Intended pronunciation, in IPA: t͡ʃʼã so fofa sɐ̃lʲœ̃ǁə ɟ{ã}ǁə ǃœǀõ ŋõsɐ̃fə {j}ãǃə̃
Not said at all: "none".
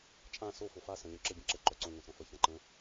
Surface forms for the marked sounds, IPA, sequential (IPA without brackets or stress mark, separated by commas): ə̃, ç